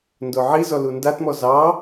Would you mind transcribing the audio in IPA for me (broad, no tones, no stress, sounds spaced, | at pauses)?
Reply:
n d o ʕ i z ɔ l u n d a t m ɔ z ɑ